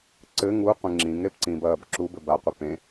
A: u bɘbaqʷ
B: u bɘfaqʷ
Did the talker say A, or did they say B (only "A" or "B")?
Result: A